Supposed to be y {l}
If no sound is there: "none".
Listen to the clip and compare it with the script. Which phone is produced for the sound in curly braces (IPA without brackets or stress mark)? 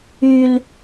l